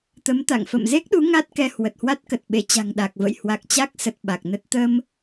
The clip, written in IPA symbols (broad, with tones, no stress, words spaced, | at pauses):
t̪ə˨˦m t̪a̰˧˨ŋ fə̰˧˨mze˦˥k̚ɗu˨˦ ŋa˦˥t̚kɛ˧ hwə˨˩t̚hwa˦˥t̚kə˨˩t̚ɓe˧˩ t͡ɕa̤˨˩ŋɗa˨˩k̚və̰˧˨j hwa˨˩k̚t͡ɕa˦˥k̚sə˨˩t̚ ɓa˨˩k̚nə˦˥t̚ t̪ə˧m